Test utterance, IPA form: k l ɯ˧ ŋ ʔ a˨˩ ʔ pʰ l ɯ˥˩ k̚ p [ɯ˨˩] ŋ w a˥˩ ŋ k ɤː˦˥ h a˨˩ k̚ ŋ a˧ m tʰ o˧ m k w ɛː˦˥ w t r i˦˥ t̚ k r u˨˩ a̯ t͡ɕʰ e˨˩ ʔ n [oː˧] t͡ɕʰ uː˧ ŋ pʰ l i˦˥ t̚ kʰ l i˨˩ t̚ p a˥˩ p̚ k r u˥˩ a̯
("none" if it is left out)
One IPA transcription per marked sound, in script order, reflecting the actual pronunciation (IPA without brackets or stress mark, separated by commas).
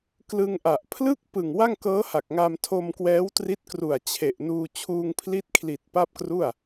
ɯ˨˩, uː˧